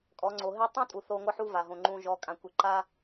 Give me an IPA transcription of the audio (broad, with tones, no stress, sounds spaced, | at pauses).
kʼ ɔ˨˦ ŋ͡ǀ o˨ ɦ e˦ tˤ ũ˦ tʼ u˨ θ o˨ ŋʷ ʌ˦ ħ u˦ v a˨ ɦ õ˨ ŋ͡ǃ ũ˨ ʒ ɔ˨˦ kʼ ã˨ kʷ e˨ ǃ a˦